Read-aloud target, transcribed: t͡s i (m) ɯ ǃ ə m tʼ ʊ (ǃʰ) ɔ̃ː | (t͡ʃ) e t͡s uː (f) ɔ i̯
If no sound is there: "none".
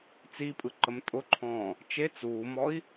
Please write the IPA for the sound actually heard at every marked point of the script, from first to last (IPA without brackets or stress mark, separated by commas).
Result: pʼ, ǃʰ, t͡ʃ, m